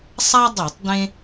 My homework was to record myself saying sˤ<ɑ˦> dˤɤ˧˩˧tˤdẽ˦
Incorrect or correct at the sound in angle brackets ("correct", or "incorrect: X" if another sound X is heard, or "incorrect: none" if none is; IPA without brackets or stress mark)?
incorrect: a˦